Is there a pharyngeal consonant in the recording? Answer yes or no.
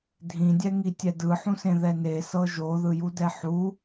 yes